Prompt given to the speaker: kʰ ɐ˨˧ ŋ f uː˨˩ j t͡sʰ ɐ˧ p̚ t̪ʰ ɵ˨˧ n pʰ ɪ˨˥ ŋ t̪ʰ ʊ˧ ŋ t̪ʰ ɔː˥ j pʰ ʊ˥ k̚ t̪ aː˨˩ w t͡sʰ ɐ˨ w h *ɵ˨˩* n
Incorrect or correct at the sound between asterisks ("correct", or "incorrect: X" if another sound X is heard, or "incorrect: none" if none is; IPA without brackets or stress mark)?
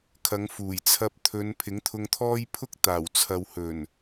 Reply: correct